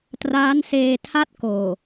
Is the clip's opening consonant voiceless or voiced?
voiceless